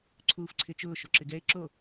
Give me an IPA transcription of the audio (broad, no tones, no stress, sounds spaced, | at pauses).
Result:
ǀʰ uː f ǀʰ ɪ t͡ʃ ʊː ʃ o ǁ ɪ ɡ ɛ e̯ ǁ o